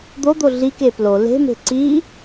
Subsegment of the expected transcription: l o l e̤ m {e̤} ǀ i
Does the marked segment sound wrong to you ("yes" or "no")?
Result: no